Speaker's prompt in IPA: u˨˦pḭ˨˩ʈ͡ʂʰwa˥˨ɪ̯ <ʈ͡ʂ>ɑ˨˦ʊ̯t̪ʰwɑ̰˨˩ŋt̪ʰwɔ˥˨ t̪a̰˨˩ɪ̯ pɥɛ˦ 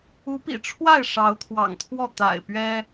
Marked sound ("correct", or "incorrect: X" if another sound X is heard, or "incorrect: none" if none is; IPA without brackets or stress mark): incorrect: ʂ